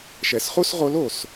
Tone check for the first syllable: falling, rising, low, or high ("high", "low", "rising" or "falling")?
low